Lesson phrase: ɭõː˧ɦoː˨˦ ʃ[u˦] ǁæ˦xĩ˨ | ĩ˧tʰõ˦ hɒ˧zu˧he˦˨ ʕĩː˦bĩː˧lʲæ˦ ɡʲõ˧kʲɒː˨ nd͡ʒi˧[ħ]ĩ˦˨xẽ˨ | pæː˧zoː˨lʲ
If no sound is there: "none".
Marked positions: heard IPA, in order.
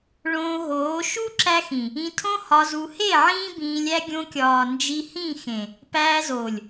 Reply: u˦, h

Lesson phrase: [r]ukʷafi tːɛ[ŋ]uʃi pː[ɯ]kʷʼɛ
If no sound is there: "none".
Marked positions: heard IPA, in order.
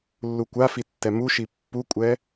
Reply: lː, m, u

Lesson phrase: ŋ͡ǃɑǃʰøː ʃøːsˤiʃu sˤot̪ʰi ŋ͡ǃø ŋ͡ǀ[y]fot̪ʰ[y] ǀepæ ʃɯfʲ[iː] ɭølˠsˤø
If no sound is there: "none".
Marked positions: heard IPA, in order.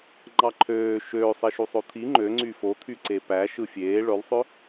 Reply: y, y, eː

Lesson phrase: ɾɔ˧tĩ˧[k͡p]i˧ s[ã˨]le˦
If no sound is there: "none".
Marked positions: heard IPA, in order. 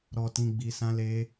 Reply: ɡ͡b, ã˦

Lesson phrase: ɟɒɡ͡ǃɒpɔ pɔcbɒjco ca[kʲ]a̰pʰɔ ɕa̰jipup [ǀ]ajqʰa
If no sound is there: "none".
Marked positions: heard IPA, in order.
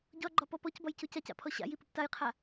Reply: c, t

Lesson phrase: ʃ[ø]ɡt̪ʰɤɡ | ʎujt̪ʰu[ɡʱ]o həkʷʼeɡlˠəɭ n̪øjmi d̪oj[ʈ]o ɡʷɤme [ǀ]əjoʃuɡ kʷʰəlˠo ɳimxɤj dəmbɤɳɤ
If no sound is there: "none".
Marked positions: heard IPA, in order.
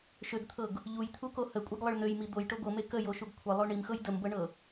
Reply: ø, k, ʈ, k

